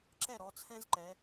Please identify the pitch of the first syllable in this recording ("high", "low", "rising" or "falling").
falling